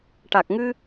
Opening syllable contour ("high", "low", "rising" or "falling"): low